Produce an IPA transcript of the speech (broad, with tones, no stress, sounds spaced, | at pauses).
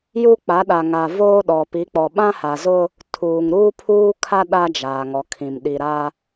j u˦ k͡p a˨˦ ɗ a˨ ŋ a˨ v oː˦ ɗ ɔ˨ p i˨˦ k͡p ɔ˨ ɓ ã˦ h a˨ z ʊ˦ | tʰ uː˨ ŋ ɾ uː˦ pʰ uː˦ kʰ a˦ ɗ a˦ d͡ʒ aː˨ ŋ ɔ˨ kʰ ĩ˨ m ɗ i˨ ɾ a˦